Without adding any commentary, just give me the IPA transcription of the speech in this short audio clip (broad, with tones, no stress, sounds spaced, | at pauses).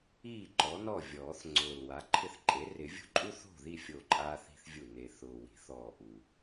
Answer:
iː˥˩ ǃ ɔ˩˥ n ɔ˥˩ vʲ ɔː˨˩˦ θ ŋ͡ǀ ʊː˨˩ l w a˩˥ ǃʰ ɪ˥˩ θ ǃʼ e˩˥ r ɪ˨˩˦ vʲ o̤˥ ǃʼ u˥ θ o̤˥˩ ð i˥˩ fʲ o˥˩ ǃʼ aː˥ θ i̤˥ θ vʲ u˥˩ n e˨˩ θ ʊː˨˩ w i̤˨˩˦ θ ɔː˨˩ ʔ u˨˩